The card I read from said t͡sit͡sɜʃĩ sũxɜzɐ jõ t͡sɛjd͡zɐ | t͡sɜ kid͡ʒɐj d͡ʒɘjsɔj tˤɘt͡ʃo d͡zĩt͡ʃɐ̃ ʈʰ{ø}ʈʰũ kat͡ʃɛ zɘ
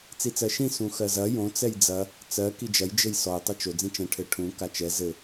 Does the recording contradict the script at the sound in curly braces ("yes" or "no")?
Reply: yes